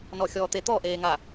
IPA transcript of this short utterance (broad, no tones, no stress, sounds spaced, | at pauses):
n ɔ xʲ ɔː t̪ e t̪ ɔ ʔ eː ŋ a